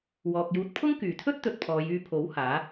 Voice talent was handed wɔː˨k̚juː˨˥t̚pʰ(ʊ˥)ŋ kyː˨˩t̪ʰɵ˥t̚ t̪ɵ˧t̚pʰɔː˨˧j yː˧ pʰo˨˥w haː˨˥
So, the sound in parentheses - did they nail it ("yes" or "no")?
yes